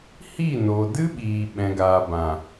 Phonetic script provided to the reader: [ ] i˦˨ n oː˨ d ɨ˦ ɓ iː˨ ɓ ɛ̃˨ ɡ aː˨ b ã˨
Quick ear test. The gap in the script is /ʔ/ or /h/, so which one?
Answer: h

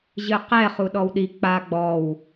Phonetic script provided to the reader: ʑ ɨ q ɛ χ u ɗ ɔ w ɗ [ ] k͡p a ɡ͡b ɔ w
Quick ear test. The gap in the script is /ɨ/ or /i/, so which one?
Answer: i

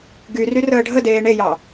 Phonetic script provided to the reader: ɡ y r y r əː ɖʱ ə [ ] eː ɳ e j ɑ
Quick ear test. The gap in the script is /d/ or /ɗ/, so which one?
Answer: d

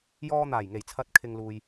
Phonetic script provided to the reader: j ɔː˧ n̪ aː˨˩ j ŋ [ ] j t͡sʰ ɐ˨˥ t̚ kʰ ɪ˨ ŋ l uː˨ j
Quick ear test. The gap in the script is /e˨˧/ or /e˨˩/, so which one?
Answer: e˨˩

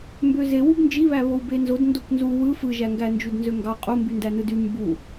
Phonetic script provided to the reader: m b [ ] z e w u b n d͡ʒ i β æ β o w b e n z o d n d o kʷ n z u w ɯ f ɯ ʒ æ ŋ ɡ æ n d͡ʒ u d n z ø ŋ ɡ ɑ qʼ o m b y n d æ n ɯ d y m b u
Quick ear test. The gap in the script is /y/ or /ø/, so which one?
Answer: ø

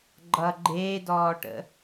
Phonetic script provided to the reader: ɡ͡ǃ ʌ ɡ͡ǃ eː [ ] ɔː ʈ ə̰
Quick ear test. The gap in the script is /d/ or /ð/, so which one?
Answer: d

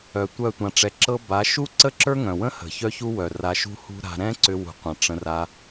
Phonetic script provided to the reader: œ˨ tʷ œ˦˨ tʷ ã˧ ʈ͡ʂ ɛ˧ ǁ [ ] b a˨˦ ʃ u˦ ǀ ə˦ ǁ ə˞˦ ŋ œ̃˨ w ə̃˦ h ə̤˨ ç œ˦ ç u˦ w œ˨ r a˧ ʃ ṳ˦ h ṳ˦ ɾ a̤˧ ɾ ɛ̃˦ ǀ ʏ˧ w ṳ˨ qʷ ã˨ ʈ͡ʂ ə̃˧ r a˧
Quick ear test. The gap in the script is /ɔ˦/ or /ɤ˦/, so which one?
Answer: ɤ˦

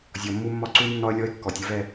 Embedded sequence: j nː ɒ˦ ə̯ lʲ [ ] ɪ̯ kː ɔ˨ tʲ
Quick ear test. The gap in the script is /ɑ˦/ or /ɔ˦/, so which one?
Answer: ɔ˦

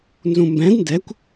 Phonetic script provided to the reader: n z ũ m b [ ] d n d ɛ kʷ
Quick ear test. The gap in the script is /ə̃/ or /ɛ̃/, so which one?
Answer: ɛ̃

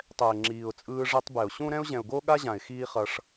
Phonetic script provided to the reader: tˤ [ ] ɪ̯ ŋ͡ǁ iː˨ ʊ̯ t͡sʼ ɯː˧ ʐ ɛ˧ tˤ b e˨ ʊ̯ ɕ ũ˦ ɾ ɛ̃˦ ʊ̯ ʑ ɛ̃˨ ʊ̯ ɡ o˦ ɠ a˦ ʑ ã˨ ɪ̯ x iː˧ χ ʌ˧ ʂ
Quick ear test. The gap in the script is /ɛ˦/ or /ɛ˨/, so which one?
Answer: ɛ˨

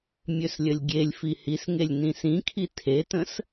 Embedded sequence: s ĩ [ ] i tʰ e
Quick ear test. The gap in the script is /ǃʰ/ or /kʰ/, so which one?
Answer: kʰ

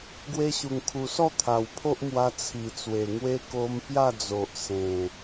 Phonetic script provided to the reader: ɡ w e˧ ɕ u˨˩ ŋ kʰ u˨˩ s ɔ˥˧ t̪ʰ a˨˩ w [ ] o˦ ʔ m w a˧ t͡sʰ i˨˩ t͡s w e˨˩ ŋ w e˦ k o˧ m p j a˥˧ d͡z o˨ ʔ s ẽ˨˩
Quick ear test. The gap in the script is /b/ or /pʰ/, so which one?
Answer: pʰ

